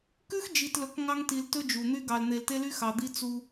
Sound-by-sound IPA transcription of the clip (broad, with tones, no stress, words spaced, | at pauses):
kʉ˦xd͡ʒi˨tlɵ˨˦k ŋɑ˦ŋti˨l tɵ˦d͡ʒu˨n̪y˦ ɡɑ˨ln̪e˨lte˦ly˦ xɑ˨d̪i˦t͡su˦